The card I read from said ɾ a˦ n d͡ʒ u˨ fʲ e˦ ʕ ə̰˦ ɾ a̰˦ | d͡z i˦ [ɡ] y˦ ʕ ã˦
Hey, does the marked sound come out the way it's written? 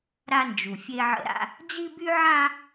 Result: no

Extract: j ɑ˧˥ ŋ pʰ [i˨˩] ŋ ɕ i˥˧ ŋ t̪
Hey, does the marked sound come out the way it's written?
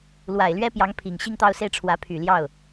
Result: yes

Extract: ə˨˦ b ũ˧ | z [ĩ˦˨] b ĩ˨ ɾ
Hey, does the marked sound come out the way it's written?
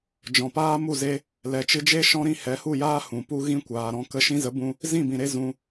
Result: yes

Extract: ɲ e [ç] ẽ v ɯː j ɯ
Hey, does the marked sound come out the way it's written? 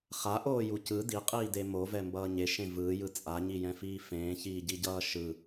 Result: no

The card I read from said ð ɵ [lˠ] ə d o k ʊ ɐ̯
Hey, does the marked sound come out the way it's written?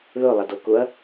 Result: yes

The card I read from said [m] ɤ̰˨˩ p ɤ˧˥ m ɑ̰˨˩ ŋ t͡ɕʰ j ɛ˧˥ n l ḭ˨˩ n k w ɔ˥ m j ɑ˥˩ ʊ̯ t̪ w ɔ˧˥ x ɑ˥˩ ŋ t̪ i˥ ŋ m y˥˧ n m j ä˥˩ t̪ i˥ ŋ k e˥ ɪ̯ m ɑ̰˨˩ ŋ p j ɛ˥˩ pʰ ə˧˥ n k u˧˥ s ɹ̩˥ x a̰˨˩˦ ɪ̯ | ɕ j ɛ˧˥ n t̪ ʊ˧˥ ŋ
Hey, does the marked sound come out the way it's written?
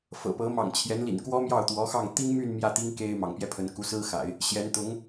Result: no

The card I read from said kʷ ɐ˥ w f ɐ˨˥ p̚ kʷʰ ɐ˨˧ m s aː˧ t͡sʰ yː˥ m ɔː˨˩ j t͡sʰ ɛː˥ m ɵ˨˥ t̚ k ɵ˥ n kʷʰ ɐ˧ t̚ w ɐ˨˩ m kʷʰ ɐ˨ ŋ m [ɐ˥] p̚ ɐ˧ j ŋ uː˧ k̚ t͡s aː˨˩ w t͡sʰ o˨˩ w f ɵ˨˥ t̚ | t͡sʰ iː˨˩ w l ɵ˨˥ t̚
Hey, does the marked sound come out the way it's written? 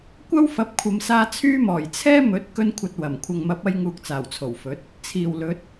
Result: no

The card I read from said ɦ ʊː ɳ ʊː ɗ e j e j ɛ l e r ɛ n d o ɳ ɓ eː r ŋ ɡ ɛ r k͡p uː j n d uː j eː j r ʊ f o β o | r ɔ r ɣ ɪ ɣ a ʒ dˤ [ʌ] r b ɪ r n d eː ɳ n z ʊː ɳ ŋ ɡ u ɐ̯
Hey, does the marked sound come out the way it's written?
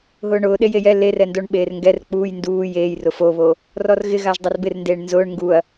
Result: no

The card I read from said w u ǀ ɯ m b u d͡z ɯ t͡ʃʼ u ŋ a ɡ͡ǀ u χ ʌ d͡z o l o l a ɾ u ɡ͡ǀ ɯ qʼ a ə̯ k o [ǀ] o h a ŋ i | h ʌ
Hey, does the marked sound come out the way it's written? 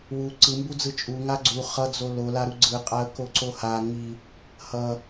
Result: yes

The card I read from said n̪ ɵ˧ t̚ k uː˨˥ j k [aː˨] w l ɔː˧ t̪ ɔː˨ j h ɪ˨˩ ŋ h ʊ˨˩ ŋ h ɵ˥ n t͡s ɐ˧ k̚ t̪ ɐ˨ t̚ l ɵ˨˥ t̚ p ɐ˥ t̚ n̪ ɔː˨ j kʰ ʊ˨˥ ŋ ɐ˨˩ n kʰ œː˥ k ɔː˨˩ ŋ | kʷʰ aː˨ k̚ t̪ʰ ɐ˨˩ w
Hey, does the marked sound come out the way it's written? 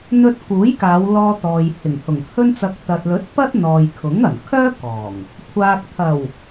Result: no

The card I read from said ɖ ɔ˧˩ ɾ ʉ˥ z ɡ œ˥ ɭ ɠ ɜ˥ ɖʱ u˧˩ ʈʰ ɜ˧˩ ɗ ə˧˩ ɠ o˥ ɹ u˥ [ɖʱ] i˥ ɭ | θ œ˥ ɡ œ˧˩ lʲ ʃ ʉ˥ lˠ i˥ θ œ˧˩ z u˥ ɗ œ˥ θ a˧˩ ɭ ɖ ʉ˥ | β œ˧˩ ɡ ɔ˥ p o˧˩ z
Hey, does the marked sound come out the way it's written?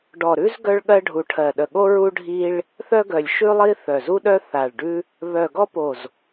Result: yes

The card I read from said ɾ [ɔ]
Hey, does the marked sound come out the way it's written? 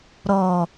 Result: yes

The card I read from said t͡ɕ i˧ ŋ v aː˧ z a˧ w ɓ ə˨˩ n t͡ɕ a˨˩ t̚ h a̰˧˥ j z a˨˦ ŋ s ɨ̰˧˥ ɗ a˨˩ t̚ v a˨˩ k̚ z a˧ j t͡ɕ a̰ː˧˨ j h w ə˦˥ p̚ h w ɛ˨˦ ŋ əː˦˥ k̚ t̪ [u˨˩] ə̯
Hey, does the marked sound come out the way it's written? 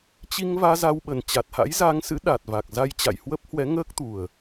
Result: yes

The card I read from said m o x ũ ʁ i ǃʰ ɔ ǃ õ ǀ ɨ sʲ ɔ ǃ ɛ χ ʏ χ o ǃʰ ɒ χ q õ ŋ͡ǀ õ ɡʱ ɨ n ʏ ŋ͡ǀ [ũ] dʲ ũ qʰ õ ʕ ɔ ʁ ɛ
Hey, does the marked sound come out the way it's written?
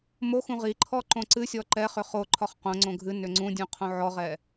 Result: yes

